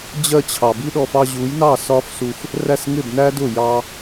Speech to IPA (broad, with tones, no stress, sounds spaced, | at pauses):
d͡ʑ ɜ˥˩ t͡ɕʰ ɑ˩ b i˥ ɗ ɔ˧ f ɑ˧ ʑ u˩˥ j n ɑ˥˩ s ɒ˥ f s u˧ f | r æ˥˩ s ŋ ɪ˥˩ b n æ˥ d ʊ˥˩ j ɑ˧